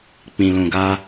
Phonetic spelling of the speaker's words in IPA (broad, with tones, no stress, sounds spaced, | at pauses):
k͡p ĩ˨ l ũ˨ ɡ a˧